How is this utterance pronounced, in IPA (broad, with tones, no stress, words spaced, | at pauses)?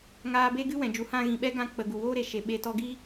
ŋaː˧ be˦ɡɨ˦ wɛ̃˨ d͡ʒu˨hã˦˨ ɣĩ˨ɓɛ˦ ɡã˧k͡pə˨ ɡu˨woː˦ɾe˨ ʃe˨ɓe˧ tɔ˧ɡiː˦